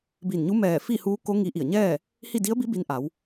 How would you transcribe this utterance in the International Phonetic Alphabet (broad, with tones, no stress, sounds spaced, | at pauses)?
b i˧˩ n ɲ u˧˥ m ɛː˧˩ f i˥˨ h uː˧˥ k o˧˥ ŋ i˧ ʔ i˧˩ ə̯ ɲ ɛː˥˨ | h i˥˨ d i˧˥ ə̯ b i˧˥ b i˧ n ʔ a˩˧ w